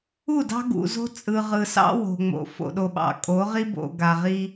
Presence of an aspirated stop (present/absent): absent